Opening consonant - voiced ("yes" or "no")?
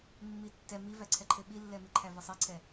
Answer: yes